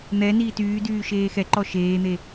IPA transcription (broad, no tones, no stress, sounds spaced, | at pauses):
n̪ ɛ n iː t yː d yː ʃ eː x ɛ ǃ ɔ ʃ eː n̪ e